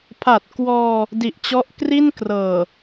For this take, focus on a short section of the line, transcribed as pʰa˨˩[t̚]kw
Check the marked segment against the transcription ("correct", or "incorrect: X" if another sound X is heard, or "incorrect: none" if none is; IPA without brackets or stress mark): correct